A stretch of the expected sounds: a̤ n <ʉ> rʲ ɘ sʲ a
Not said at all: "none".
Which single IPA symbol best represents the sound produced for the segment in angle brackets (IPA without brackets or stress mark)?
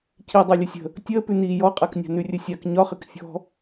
ʉ